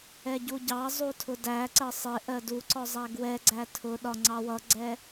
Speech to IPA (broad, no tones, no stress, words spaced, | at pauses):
ɛɟuɟɑzˤu tʰʊdæǀɜ sˤɪ ʔɜduǀɔ zˤæɡwɛɡ͡ǀæ tʰʊɗɒ ŋ͡ǀɑwʌɡ͡ǀɛ